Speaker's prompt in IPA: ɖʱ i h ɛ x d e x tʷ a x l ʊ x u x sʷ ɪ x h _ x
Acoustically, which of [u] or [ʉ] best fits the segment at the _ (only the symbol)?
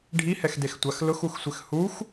u